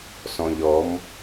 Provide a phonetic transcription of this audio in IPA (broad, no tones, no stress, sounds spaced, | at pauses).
s ɔ̃ ʎ ɔ m